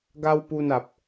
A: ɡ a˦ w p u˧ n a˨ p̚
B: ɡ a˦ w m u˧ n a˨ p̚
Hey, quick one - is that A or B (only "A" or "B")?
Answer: A